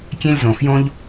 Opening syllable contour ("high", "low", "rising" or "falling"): high